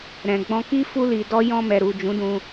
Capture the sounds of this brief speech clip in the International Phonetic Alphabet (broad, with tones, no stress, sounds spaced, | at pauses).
ɾ ɛ̃˨ ɡ͡b ɔ̃˧ k i˦ f u˦ l i˧ d ɔ˦ j ɔ̃˧ m ɛ˨ ɾ u˨ d͡ʒ ũ˨˦ d ũ˧